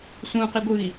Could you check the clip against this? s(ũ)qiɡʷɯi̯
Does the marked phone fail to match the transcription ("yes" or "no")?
no